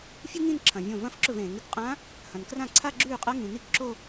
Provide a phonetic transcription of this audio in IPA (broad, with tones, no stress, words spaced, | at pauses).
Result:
fʲu˥ŋĩ˥˧n ǁʰɐ̃˨vʲõ˥˩ vɐ̃˥˧fǁɵ˥˩vẽː˨˩˦ŋ ɾɨ˨kqʼã˧˥ | hɐ̃˨nkrã˥˩ǀʰa˥˧ ɡ͡ǁʉː˥˩qʼɐ˧˥ ŋĩ˨ni˥˧kǁo˥˧